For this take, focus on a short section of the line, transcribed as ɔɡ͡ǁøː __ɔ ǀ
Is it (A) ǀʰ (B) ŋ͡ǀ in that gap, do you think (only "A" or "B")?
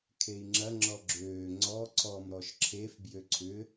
B